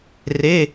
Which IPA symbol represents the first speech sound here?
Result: r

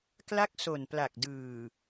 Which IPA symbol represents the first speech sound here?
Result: k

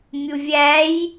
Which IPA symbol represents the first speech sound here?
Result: mʲ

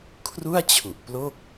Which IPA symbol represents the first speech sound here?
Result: kʰ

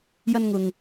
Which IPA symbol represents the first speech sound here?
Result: j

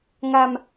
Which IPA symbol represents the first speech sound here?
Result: ŋ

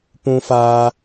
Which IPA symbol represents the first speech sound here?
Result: p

